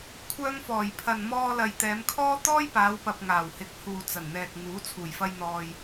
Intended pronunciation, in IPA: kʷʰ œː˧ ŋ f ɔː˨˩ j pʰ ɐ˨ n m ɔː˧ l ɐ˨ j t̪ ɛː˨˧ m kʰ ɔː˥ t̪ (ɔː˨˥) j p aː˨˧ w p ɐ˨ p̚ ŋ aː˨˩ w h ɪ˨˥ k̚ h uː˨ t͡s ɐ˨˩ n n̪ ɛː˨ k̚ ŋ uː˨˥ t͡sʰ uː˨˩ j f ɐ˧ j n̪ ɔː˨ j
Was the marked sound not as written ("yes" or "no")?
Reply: yes